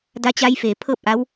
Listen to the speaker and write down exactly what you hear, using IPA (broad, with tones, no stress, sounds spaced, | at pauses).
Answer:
d a˧ t͡ɕ a˧ j f eː˩ pʰ ɤː˥˨ p̚ ʔ a˧˥ w